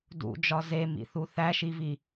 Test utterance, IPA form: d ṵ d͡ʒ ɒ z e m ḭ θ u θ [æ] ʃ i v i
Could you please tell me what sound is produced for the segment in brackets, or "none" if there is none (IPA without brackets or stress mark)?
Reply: æ